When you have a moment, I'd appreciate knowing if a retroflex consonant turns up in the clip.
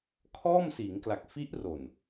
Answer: no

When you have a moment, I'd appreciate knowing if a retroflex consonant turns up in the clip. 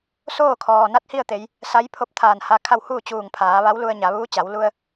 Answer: no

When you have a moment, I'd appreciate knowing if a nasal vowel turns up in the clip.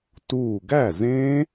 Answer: yes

